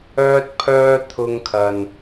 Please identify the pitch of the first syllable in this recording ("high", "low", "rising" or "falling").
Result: high